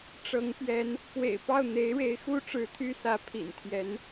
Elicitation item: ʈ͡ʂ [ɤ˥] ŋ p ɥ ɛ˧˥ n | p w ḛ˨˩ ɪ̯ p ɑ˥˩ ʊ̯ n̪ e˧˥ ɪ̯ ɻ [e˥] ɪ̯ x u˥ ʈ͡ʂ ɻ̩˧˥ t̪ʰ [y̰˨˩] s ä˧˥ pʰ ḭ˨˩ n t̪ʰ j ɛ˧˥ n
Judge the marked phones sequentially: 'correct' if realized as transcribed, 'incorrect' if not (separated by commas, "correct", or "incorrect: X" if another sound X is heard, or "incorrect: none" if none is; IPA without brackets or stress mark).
incorrect: ɤ˧˥, incorrect: e˧˥, incorrect: y˥